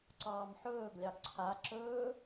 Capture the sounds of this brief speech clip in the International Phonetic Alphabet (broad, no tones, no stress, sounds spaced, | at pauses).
ǀ ɑː m ħ ɵː ɡ lʲ ɑ ɡ ǀʰ a ǁ ɵː